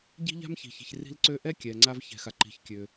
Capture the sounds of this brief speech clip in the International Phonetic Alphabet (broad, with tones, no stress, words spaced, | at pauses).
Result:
ɟi̤˥ʎa̤˥mçi̤˨çi̤˨ç ri̤˦lǀø˦ʔɛ˥ kʲɛ˨ŋ͡ǀa˥v çɛ̤˨xa˨ ǃi̤˨çkʲø˨